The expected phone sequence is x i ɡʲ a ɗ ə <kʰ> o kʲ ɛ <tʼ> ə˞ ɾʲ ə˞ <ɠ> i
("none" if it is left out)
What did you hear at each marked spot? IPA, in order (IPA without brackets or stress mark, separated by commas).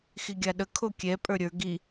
kʰ, pʼ, ɡ